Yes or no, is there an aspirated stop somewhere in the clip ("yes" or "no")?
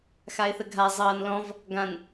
no